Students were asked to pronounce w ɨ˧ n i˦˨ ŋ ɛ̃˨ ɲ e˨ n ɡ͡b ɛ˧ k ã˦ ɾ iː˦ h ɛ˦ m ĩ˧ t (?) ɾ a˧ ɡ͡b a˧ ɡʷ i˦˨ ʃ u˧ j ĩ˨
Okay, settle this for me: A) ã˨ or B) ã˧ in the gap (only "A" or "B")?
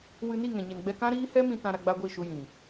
B